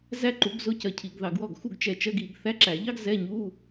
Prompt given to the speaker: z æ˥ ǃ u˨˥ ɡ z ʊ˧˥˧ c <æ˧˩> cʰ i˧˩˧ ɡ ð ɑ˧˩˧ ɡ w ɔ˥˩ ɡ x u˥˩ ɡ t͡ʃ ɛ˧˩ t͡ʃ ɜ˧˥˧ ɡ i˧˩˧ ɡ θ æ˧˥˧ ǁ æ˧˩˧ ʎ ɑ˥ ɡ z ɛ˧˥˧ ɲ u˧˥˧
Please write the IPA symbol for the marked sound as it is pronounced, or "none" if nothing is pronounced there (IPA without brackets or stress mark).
ɜ˧˩